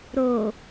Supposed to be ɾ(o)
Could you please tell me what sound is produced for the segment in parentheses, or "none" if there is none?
o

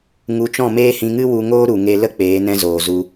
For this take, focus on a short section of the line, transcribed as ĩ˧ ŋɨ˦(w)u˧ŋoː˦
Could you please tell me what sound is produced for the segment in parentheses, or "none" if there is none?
w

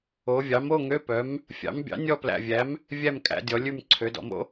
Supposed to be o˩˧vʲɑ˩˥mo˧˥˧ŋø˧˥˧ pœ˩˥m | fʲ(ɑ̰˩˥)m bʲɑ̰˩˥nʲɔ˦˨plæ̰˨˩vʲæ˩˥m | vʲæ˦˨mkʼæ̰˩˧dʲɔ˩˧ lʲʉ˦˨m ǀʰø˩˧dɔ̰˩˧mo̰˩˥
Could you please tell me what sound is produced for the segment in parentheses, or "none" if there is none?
ɑ̰˩˥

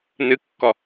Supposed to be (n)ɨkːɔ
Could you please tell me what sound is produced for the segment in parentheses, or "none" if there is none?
n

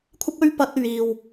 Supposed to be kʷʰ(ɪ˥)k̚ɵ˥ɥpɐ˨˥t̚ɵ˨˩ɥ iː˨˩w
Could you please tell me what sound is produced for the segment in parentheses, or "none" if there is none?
ɪ˥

